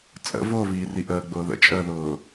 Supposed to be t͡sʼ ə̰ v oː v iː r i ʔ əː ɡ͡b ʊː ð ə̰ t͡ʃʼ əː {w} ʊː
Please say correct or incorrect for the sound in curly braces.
incorrect